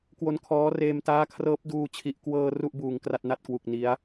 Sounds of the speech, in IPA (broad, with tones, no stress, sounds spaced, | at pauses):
k w o˧ n kʰ ɔː˦˥ r eː˧ m t aː˦˥ kʰ r ɤː˦˥ p̚ d uː˧ t͡ɕʰ i˨˩ ʔ k w ɤː˧ r u˥˩ ʔ b uː˨˩ ŋ k r a˥˩ t̚ n a˥˩ t̚ k w u˨˩ k̚ n i˦˥ a̯